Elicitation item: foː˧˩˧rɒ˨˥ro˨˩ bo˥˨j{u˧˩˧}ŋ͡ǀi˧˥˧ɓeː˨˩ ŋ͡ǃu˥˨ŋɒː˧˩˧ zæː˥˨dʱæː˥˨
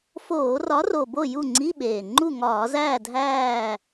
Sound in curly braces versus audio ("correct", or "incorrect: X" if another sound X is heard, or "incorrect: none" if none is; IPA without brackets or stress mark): incorrect: u˥˨